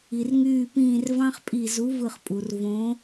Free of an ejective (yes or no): no